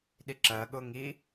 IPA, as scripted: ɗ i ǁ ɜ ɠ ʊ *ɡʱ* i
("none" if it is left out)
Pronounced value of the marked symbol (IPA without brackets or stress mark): ŋ